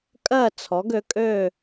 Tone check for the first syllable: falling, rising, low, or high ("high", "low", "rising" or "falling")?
falling